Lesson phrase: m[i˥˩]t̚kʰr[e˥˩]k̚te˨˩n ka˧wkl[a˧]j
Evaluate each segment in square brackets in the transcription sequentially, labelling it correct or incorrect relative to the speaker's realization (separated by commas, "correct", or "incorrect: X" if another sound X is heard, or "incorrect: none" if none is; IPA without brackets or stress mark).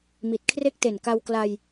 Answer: incorrect: i˨˩, correct, correct